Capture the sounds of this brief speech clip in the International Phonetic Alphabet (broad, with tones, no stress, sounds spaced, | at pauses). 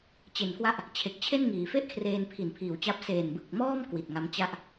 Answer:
t͡ɕ e˨˩ n k w a˦˥ ʔ | t͡ɕʰ e˨˩ k̚ t͡ɕʰ e˥˩ n ŋ iː˩˦ f e˥˩ ʔ kʰ r eː˧ n pʰ i˨˩ n pʰ iː˨˩ w t͡ɕ a˦˥ p̚ s eː˨˩ n b ɯ˨˩ k̚ m ɔː˥˩ m k w i˨˩ t̚ ŋ a˦˥ m t͡ɕ a˥˩ ʔ